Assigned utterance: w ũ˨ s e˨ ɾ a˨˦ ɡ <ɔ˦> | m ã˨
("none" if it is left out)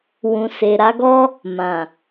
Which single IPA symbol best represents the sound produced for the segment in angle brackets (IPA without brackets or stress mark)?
ɔ˦